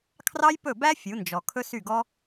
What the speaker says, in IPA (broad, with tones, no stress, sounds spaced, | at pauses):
kʰ r ɑ˦ j p ɵ˦˨ b æ˦ fʲ u˨˦ n d͡ʒ ɔ˨ kʰ ɵ˦ s y˦˨ ɡ ɔ˦